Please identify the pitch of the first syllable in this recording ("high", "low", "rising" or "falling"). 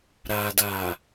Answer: low